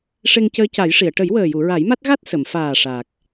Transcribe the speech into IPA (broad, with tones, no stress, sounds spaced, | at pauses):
ʂ e˧ ŋ c əː˧˥ c a˨˩˦ j ʂ i˨˩˨ ə̯ ʈ ə˨˩˦ j w əː˨˩ j u˨˩˨ ɹ a˨˩˦ j m a˦˥ t̚ ɣ a˦˥ t̚ s ə˨˩˨ m f aː˨˩ ʂ a˨˩ k̚